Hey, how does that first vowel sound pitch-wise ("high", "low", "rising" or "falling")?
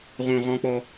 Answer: low